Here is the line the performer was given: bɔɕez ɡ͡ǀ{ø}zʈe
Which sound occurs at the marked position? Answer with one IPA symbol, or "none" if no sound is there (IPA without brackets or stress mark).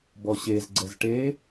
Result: ɛ